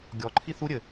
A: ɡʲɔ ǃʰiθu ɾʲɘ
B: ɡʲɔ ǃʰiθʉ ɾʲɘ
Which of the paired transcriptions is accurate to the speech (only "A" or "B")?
A